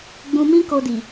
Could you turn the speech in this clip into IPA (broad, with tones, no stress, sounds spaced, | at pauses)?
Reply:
ɡ͡b ũ˧ m ĩ˦ k o˧ d i˨